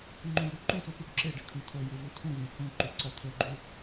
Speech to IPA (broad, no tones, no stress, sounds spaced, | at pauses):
ŋ͡ǃ ũ j ʉ ǃ ũ s u p ʉ ɖ ǁ e ɖ e kʰ ũ tʰ ɵ j u v u tʰ ũ v ẽ h ũ ǃ u ǀ ɐ t̪ʰ ɵ ɡ͡ǃ ʉ